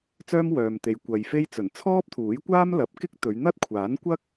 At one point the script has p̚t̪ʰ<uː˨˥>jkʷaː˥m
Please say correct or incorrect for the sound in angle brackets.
correct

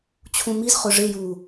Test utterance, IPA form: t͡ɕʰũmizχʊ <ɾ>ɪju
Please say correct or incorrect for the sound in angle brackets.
incorrect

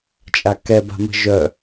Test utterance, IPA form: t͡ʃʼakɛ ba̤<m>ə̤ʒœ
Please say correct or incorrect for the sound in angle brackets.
correct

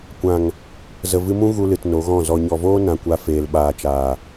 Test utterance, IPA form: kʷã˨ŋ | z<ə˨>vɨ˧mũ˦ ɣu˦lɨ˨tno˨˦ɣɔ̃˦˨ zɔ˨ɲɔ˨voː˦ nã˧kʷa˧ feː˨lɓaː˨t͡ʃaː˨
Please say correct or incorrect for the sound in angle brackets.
correct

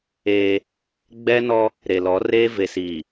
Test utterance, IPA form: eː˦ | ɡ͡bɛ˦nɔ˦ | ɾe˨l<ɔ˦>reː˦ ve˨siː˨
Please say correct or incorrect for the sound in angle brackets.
incorrect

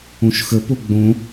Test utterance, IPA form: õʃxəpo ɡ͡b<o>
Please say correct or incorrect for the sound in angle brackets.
incorrect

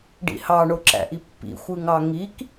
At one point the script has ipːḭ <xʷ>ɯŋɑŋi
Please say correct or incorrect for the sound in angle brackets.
correct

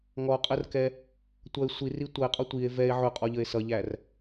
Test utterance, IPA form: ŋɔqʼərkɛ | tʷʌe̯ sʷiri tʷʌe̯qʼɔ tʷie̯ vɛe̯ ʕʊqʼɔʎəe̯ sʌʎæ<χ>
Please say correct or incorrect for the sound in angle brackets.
incorrect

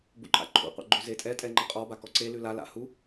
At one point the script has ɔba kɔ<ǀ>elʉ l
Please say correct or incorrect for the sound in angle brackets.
correct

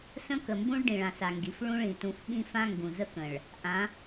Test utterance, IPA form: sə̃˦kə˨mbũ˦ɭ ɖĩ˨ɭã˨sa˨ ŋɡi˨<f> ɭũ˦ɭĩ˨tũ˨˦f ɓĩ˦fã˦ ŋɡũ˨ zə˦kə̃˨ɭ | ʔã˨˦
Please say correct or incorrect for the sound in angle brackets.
correct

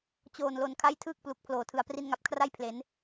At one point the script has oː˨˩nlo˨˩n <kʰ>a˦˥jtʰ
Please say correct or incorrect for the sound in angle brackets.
correct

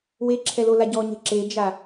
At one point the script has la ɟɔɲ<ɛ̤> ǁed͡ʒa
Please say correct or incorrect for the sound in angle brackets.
correct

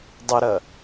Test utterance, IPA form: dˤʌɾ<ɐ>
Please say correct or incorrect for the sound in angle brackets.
correct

